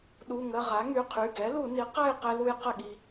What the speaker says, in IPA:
ɗu˩˧˩ŋə˩˧˩ ʁa˩˥ŋy˩˧˩qʰy˩˧˩ ɡɛ˩˥lu˧˩˧ ni˩˥qa˥˨j qɛ˧lu˧j qə˥˨ɠi˧

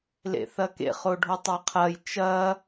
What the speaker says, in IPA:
lḛθɐkḛ χoɖʱotˤɛqʰɐj t͡ʃɐ

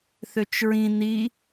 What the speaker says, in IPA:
θøt͡ʃɹĩ ni

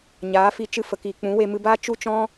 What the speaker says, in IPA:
ɲaː˨˦fi˧ t͡ʃɨ˧fə˨kiː˨ k͡pũ˨˦we˧mɨ˧baː˦ t͡ʃu˦t͡ʃɔ̃˦

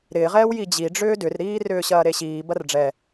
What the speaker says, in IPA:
ɾɪːʁɛːw jid͡ʑiɖ͡ʐʏː dʏrɾiː rʏːɕɐːɾeɕiː bɐrɖ͡ʐɛ

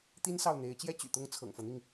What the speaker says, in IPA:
t̪i˦nsɑ˨ʊ̯n̪e˨˦ɪ̯t͡ɕjɛ˦ t͡ɕy̰˨˩t̪ʊ˥˨ŋ t͡sʰɤ̰˨˩ŋfɤ˦n̪i˥˨ŋ

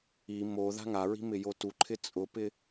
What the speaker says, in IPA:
i mo ða̤ŋaɹi̤ mɪjotuǃʰɪ t͡sʼʊpɪ

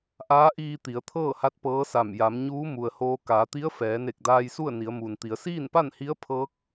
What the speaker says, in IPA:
ʔaː˧˥ʔiː˧ t̪i˩˧ə̯t̪ʰɤː˥˨ha˧˥t̚ pɤː˧˥sa˧˩m ja˩˧mɲuː˧˥ mu˩ə̯hoː˧ kaː˩˧t̪i˧˥ə̯ fɛː˩˧ne˧˩k̚daː˧jsu˥˨ə̯ ni˩˧ə̯muː˩nt̪i˩˧ə̯ siː˥˨npa˥˨nhi˧˥ə̯ pʰɤː˧˥k̚

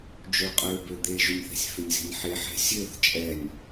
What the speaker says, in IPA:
d͡ʒøɭqʼøbø d̪eʒʏnʲθɛ̤sʲ fʏnʲze̤nʲħeħɛ̤ sʲøθ t͡ʃʼɛnʲ

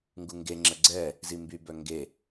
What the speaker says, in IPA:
ŋɡuŋɡeŋ͡ǁə ɡ͡ǀɛ | zimby bœŋɡe

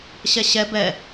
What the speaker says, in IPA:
ɕɛɕɛ bɛ

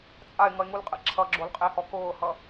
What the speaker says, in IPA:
t͡sʼaɪ̯ŋʌɪ̯ŋulqʼɛ̰ ǁʰʌɡ͡ǁolqʼehɔ kʊːhʌ

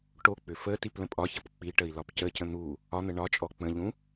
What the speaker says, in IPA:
ʈok͡pʏ fə tiplə̃pʼɒçɐp k͡piʈəi̯ lɒpcəcə̃ n̪u | ɒn̪ə ɳɒt͡ʃʼɔ k͡pə̃ʎũ

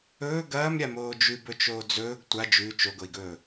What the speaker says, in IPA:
ɵː ɡɐːmɾʲamoː d͡ʒʉbɵt͡ʃoː d͡zɵːɡ tʷa d͡ʒʉ t͡ʃoɡoi̯ɡɵː

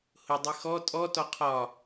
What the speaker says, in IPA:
hʊdˤi xɔ tʼɔtɔ qʰɒ

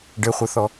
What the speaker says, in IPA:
ɖɘχʷɤθɔ

